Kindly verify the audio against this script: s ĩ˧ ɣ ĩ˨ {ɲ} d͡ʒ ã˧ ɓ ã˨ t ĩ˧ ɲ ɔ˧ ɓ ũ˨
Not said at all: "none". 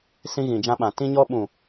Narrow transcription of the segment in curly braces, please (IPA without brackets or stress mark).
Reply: none